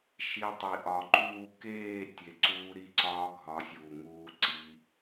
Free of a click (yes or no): no